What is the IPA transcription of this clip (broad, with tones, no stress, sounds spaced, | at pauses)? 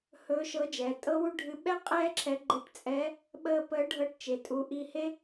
h ɵː˧˥ ʃ ɤ˧˥ d͡ʒ ɛː˩˧ tʼ ɤ˥ w u˥ ɖʱ ɨ˧˥ ɓ ɛ˥ qʼ ɛː˥ ǁʰ ɛ˧˥ ɡ͡ǃ əː˧ ʈ t͡sʼ ɛ˧˥ | ɓ əː˧ p əː˧˥ ɖʱ ɤ˧ ʈ t͡ʃ e˩ tʼ u˩˧ ʔ i˧ h e˥